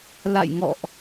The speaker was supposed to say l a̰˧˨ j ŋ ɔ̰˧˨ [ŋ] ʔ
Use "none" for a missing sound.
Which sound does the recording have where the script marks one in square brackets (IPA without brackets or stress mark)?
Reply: none